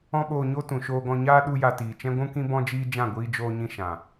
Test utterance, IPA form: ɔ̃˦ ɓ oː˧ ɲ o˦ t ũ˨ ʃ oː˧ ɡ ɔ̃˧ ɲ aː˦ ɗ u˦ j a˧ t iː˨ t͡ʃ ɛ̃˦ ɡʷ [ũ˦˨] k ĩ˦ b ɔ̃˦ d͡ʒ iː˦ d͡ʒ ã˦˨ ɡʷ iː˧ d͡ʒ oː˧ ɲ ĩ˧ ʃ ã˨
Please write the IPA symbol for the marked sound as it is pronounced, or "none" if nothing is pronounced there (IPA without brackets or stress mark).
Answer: ũ˦